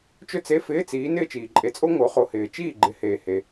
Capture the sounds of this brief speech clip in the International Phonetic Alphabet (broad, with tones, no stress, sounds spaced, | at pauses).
t͡ʃ ɵ˥ t͡s e˧˥˧ f ɪː˧˥˧ t͡s iː˨˦ n ɪː˥˨ t͡ʃ iː˩ ǃʼ e˨˦ t͡sʼ o˥ ŋ o˨˦ χ o˨˦ h ɪː˩ t͡ʃ iː˥˨ ɡ͡ǃ ɪ˨˦ h eː˩ h e˩